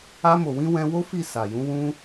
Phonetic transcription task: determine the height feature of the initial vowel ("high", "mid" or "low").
low